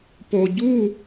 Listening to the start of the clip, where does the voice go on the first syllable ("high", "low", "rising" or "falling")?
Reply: low